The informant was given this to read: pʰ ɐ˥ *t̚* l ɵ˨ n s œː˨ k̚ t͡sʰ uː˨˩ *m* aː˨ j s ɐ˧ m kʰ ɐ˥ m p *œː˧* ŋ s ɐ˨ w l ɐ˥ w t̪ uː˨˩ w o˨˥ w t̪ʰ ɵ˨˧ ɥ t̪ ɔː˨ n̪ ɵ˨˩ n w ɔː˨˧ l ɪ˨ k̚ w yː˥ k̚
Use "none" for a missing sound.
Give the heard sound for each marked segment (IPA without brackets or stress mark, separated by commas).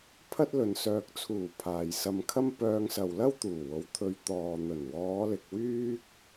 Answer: t̚, pʰ, œː˧